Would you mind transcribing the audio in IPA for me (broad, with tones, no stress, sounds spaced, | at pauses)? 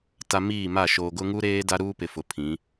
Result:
t a˨ m iː˦˨ m a˦˨ ʃ oː˨ ɡ ʊ˦ ŋ u˦ ɾ eː˦ d a˦ ɾ uː˦ p ɪ˨ f ʊ˨ pʰ ĩ˨˦